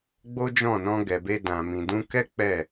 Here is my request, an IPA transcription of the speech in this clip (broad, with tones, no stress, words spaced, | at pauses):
ɡ͡bo˦d͡ʒɔ̃˦˨ nɔ̃˧ɡɛ˨be˧ dã˨mĩ˨ dũ˧kɛ˦ k͡pɛ˦˨